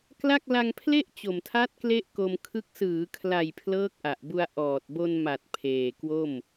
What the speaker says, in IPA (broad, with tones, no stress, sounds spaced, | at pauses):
k l a˥˩ k̚ l a˧ ŋ pʰ l e˥˩ ʔ t͡ɕ o˨˩ m tʰ a˦˥ t̚ k l e˥˩ ʔ k o˧ m kʰ ɯ˦˥ k̚ s ɯː˩˦ kʰ l a˨˩ j pʰ l ɤː˦˥ k̚ ʔ a˨˩ ʔ b u˧ a̯ ʔ ɔː˨˩ t̚ b o˧ n m a˨˩ t̚ pʰ eː˨˩ k w o˥˩ m